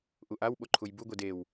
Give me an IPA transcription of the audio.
ʔ u ʔ a w ɓ o ǃʰ u j b u ɡʷ i d e w

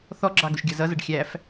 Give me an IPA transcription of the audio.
θ ɔ ɡ͡ǁ ɑ ɡ ʊ ʃ ɡʲ ʌ z ʌ z ʌ ɖ xʲ æ f

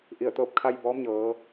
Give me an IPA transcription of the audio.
ʔ i˧˩ ə̯ t̪ ɤː˧ p̚ kʰ a˧ j b ɔː˧˥ m ɲ ɤː˩˧

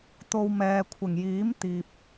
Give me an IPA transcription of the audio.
t̪ o˨ w m ɛː˨ kʷʰ ɪ˨˩ ŋ j iː˨˥ m t̪ iː˨ p̚

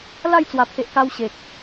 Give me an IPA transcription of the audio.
l a˥˧ j t͡s w a˨˩ pʰ e˨ ʔ k a˧ w ɕ e˨ k̚

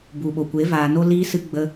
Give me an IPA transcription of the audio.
b u˨ ɓ o˨ kʷ e˨˦ v aː˧ n o˦ l iː˧ s ɨ˧ ɡ͡b ə˧

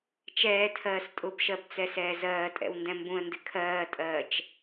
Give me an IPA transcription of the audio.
t͡ʃ ɛː tʰ ɜː s tʼ ʊ b ʃ ɜ b t͡s ɛ s ɛː z ɜː tʼ ɛ̰ w n d ɛ̃ m b ũ ə̯ n d ɪ kʰ ɜː tʼ ɜː t͡ʃ

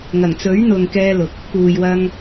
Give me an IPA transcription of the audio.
ŋ ɐ˨˩ ŋ t͡s ɵ˨˥ ɥ n̪ ʊ˨ ŋ k ɛː˧ l ʊ˨ k̚ | p uː˨ j w ɐ˧ ŋ

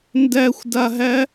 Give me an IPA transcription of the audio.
n d æ xʷ d a ɦ æ

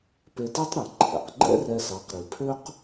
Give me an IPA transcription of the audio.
p e˧ t i˥ tˤ ɾ e˩ ǃʰ ɛ̰˩ q ɡ͡ǃ ɛ̰˥ r ɛ˧ s ɑ˩˥ q ɾ i˩ pʰ ø˥ q

